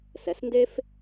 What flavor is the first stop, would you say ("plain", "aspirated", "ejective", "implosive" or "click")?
plain